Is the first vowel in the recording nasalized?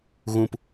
yes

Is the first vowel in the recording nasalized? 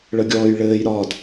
no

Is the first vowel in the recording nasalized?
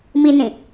no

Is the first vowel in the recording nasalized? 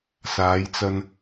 no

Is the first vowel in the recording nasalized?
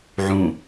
yes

